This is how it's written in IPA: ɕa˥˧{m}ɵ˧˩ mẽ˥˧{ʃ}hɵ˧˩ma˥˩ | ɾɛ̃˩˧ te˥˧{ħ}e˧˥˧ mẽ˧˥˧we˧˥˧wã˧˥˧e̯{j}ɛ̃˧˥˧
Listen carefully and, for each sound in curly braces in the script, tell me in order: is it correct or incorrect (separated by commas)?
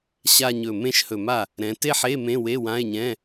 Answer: incorrect, correct, correct, incorrect